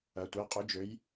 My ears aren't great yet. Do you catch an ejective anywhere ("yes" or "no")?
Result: yes